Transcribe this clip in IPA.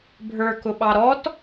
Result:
bʱ ə˞ k ʊ ɓ ɑ ɾ ɔ t

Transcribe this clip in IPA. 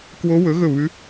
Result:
k w o˦˥ w ɵ˨˥ ɣ ɵ˦˨ β ʉ˦˥

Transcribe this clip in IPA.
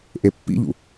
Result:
ʔ e pː ḭ ʎ ṵ

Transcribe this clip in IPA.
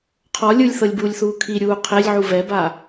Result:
qʰ ɔ lʲ ɯ lʲ θ ɤ lʲ b uː lʲ θ uː kʰ i ɾʲ uː qʰ e lʲ ʕ u v ɛ b a

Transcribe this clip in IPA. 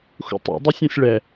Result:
x ṵ tˤ ṵ dˤ u sʲ ɔ̃ sʲ ɭ ɛ

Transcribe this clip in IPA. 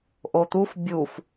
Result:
ʔ o t̪ u f bʲ u f

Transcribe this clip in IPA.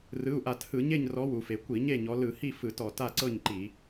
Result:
r ɯ˩˧˩ u̯ ʔ a˧˩˧ t h ɯ˧˩˧ ɲ e˥˨ ɲ r ɔ˨˦ w u˩ f e˩ kʷ i˧˩˧ ɲ e˥˨ ɲ ɔ˨˦ l ɯ˧˩˧ h i˥˨ f ɯ˧˩˧ t ɔ˩ t a˥˨ ǀ ɤ˥˨ ɲ ǃ i˧˩˧

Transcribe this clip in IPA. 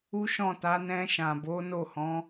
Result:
u˦ ʃ ɔ̃˦˨ t a˨˦ n ɛ̃˧ ʃ ã˨ b o˨˦ n o˦˨ h ɔ̃˨˦

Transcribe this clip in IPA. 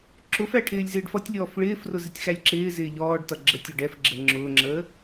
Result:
ǁ ʊ f æ ʈʰ ɪː lʲ z ɪː ɖ f ʌ tʲ lʲ ɔː f ɭ ɪː f r ʊ z ɪ tʲ x æ lʲ ǁ ɪː z ɪː ʎ ɔː ɖ t ʌ ɡ͡ǁ ə tʲ ɔ ɖ ɛ f ɡ͡ǁ ə ŋ͡ǁ ʊː ŋ͡ǁ əː

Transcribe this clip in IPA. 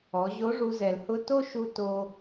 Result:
ɔ˩˧ ʑ o˧˥ ʐ u˧ z ɛ˩ l h ʊ˧ t o˥ ʃ u˧ t o˧

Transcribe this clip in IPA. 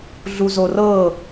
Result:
ɮ u z o r ɤ

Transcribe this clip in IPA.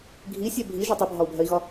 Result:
ɡʱ i sʲ ɛ bʱ i ʒ ɔ tˤ ʌ bʱ ɒ u̯ bʱ ɜ i̯ ɣ ɒ

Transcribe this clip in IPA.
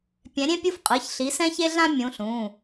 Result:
pʲ ɛ̃˨˦ ɾʲ ẽ˥ pʲ u˥ f qʼ ɯ˩˧˩ ç ɬ i˨˦ s ɛ̃˥ ç e˥ ɮ ã˥ mʲ ũ˨˦ ɬ ũ˩˧˩

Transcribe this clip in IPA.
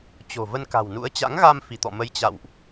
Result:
t͡ɕ o̤˨˩ v ə˧ n k a̤˨˩ w n ṵ˧˥ ə̯ t͡ɕ a̰˧˥ ŋ ɣ a˧ m f i˧˩ t̪ ɔ̰˧˨ m ə˨˦ j t͡ɕ a̰˧˨ w ʔ

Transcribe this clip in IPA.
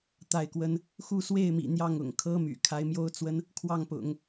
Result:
t̪ a˥˩ ɪ̯ k w ə˥ n | x u˥˧ s w e˥˩ ɪ̯ m ḭ˨˩ n̪ j ɑ˥˩ ŋ ʊ̰˨˩ ŋ kʰ ɤ˥ m y̰˨˩ kʰ a˧˥ ɪ̯ m j o˥ ʊ̯ t͡s w ə˥ n | kʰ w ɑ˥˩ ŋ p ʊ̰˨˩˦ ŋ

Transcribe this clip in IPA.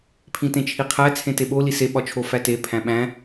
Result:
pʰ ĩ t ẽ t͡ʃʰ i qʰ æ t͡sʰ ẽ t e ɓ o l i s e ɓ ɒ t͡ʃʰ o f æ t e pʰ æ̃ ɓ æ̃

